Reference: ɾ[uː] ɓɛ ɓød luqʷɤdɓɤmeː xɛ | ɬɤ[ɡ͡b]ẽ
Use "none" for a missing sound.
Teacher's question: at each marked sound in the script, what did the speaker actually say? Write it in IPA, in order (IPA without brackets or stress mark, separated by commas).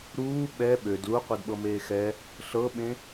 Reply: uː, ɓ